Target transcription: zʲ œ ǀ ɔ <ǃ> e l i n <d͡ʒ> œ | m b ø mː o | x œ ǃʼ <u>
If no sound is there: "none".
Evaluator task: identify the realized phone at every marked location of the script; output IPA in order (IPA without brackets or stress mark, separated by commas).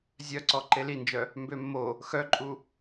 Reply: ǃ, d͡ʒ, u